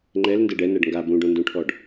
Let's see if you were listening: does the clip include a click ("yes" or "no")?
yes